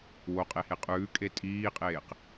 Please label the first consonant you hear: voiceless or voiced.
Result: voiced